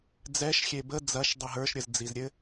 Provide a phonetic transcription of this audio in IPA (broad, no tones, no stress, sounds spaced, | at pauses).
d͡z ɛ ʃ xʲ e b ə d͡z ɐ ʃ dˤ i ɦ ə˞ ʃ ɾʲ ə z d͡z i z ɾʲ ɘ